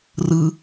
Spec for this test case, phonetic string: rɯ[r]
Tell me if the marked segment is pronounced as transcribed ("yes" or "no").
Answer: no